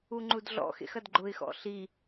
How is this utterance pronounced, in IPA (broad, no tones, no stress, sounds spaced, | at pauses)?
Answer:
u ŋ͡ǃ u d ɮ ɔ̰ x ḛ x ɐ d ɡ͡ǃ ʊ ɪ̯ x ɔ̰ ɬ i